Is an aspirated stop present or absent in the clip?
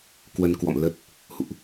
absent